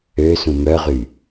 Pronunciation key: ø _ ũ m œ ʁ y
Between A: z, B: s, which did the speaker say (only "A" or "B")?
B